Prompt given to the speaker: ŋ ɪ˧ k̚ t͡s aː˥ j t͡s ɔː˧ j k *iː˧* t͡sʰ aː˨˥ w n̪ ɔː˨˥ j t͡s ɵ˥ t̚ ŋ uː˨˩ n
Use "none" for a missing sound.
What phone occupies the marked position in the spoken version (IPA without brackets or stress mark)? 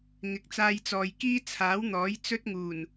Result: iː˥